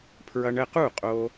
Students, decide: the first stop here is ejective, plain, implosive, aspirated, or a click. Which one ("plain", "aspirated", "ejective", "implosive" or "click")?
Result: aspirated